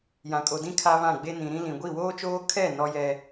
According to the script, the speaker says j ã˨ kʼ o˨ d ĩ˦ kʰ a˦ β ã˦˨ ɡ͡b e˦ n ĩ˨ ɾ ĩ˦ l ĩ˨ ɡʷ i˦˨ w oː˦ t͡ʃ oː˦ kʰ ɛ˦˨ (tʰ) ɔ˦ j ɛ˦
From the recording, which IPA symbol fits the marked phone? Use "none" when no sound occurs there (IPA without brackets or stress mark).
n